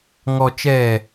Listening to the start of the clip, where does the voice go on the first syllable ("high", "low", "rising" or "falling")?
low